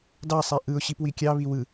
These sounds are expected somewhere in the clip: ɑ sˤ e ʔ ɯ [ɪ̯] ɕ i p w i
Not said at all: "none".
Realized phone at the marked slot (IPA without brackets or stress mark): ʊ̯